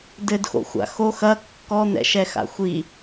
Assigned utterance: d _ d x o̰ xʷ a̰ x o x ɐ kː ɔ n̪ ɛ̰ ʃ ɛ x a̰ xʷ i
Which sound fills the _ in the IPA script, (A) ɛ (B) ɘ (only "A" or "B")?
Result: B